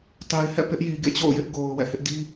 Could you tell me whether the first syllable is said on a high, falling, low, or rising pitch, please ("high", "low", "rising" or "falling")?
low